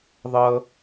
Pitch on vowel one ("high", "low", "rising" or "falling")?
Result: high